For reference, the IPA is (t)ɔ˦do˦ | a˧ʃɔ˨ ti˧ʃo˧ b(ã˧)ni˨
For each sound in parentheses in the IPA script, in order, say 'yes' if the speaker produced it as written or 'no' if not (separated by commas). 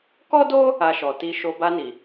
no, no